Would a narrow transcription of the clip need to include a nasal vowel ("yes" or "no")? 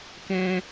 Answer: yes